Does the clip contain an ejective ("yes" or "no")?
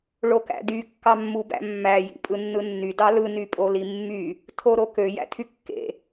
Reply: yes